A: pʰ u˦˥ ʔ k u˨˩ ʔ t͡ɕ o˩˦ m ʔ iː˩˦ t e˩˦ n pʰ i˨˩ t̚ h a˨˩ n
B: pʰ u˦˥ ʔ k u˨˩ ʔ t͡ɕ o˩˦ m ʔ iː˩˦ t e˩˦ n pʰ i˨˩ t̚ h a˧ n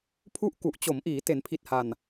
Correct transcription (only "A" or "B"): A